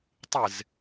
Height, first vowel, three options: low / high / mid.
high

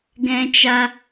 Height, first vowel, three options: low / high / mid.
mid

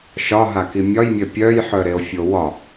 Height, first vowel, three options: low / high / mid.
low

